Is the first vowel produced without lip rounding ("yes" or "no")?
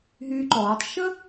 no